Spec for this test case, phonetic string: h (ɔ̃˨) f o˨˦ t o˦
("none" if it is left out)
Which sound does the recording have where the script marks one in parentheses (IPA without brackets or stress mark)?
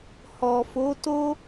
ɔ˨